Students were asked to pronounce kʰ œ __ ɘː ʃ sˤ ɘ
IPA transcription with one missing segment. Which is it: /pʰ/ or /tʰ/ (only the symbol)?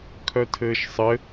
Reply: tʰ